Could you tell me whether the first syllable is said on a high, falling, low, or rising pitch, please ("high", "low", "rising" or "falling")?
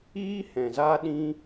high